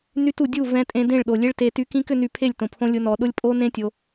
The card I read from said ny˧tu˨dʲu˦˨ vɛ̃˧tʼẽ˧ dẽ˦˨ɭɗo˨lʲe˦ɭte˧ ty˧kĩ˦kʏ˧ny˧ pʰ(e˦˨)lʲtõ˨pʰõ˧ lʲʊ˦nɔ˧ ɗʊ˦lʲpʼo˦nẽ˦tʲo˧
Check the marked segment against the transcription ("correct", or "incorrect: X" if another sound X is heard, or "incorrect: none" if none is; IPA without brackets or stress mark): correct